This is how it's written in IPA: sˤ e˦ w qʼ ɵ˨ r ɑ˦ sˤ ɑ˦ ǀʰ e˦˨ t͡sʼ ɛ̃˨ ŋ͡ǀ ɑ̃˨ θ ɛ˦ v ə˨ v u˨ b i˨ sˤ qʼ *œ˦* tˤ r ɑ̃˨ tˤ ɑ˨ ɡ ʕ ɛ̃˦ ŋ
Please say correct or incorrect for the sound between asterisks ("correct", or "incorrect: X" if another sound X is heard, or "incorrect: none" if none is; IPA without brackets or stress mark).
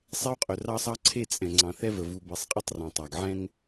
incorrect: ə˦